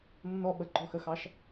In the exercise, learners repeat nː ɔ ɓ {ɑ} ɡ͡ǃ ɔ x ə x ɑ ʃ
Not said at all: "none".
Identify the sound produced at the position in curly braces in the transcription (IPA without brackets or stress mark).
ə